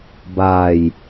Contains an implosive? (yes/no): no